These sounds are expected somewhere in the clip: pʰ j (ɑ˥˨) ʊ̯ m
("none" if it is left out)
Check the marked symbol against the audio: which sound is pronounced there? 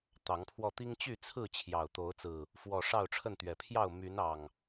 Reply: ɑ˥˨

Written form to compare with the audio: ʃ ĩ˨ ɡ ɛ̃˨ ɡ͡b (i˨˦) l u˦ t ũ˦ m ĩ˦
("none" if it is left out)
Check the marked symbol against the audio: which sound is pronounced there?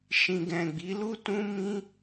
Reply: i˨˦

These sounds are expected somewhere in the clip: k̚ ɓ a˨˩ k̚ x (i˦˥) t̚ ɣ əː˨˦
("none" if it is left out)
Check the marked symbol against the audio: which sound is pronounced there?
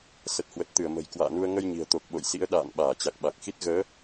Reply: i˦˥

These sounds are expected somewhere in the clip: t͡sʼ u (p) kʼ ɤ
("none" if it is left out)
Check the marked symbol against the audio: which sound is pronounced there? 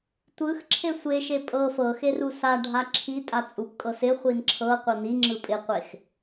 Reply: p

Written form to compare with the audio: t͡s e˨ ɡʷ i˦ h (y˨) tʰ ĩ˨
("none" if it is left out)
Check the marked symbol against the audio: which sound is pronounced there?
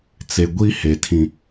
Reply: e˨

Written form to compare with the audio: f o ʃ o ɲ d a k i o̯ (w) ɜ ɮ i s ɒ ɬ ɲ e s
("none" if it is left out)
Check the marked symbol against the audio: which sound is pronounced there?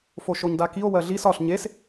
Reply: w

